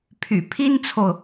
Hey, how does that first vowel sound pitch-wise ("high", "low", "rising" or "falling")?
low